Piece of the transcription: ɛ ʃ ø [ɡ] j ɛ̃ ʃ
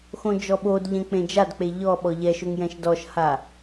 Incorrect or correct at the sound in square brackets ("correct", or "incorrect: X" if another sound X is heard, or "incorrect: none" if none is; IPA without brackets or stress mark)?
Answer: incorrect: ŋ